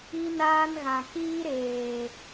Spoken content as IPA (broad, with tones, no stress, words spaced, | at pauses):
i˦naː˦nɣã˨ kiː˦ɾeː˨